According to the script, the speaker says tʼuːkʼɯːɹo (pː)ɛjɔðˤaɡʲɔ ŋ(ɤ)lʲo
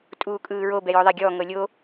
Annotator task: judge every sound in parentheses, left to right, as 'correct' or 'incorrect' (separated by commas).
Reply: incorrect, correct